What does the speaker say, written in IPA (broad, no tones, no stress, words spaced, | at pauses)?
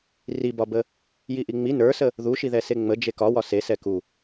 ribɒbə | jiʔiŋ͡mi nə˞sə | ðuʃiðɛse ŋ͡mə d͡ʒekɒwɒ sesɛ ku